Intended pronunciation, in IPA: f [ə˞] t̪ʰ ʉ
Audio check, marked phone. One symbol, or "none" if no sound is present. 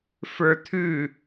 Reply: ə˞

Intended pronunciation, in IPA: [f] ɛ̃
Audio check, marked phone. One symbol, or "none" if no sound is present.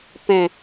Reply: p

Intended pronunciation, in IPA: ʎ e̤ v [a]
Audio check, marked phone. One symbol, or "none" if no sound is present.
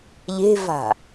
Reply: a̤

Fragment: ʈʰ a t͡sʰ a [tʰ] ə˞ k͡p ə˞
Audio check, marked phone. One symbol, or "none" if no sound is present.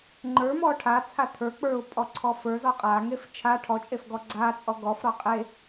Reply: tʰ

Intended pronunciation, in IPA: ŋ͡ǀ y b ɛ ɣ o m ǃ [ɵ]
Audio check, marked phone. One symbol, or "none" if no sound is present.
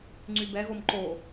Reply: o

